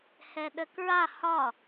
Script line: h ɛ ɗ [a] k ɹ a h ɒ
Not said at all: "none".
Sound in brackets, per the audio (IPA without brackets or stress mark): ə